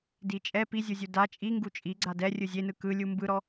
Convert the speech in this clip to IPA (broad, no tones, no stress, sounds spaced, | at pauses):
d i t͡ʃʼ ɛ p i zʲ u zʲ u d a t͡ʃʼ i ŋ ɡ u t͡ʃʼ i ɡ͡ǀ a d ɛ rʲ ɯ zʲ e n ɯ k ɯ lʲ u m b ɯ ɾ ɔ